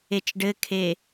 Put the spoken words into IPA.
e t͡ʃ ɖ ɘ kʰ e

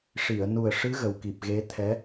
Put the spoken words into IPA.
ʂ i˨˩˨ ə̯ n u˨˩ ə̯ ʂ ɨ˧˥ ɣ ə˨˩ w k i˨˩ p̚ ɣ e˧˥ t̪ʰ ɛ˧˥

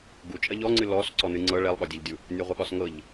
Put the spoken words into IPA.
ɡ u t͡ʃʼ ɐ ʎ ɔ ŋ͡ǀ ɨ l ɔ s ǀ ɔ n ɨ ŋ͡ǀ ɤ ɭ ɛ lˠ ɠ ɒ dʲ ɐ ʎ dʲ u | nʲ ɒ ʁʷ ɐ ɠ ɒ s ŋ ɤ ʎ

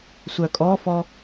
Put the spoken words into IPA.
sʷ œ kʼ ɔ f ɔ

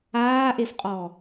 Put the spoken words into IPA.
aː ʔ e f qʼ ɔ

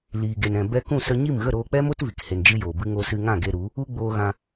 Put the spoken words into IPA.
l iː˨ ɡ e˨ n ɛ̃˨ b ɛ˧ k ũ˦˨ s ə˧ ɲ i˦˨ m ɣ ə˦˨ ɾ oː˧ k͡p ɛ˦ m o˦ t v i˨ k h e˧ n d͡ʒ ɨ˦ j oː˨ b ɨ˦ ŋ o˧ s ɨ˧ ŋ ã˦˨ ɡ e˧ ɾ u˨˦ | u˧ ɡ͡b oː˧ ɣ ã˧

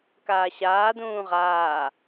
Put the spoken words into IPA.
k aː ɕ aː d ũː ʁ aː

